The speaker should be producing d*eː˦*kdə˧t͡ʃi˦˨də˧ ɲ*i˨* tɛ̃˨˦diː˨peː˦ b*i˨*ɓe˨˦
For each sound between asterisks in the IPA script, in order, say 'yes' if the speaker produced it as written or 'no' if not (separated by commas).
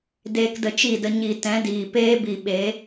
no, yes, yes